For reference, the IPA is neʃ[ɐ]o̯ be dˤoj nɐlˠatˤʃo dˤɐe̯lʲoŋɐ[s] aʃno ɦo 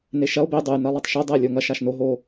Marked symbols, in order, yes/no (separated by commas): yes, no